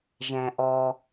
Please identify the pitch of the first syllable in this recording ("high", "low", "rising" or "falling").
low